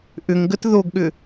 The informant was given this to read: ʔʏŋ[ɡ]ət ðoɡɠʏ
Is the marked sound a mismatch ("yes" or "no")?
no